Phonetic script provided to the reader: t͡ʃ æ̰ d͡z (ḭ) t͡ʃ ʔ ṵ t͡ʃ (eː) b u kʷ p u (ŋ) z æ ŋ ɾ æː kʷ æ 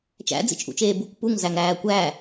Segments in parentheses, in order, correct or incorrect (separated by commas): correct, correct, correct